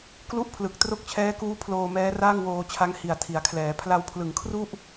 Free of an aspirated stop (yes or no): no